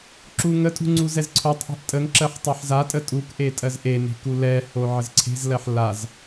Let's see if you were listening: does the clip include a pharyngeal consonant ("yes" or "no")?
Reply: yes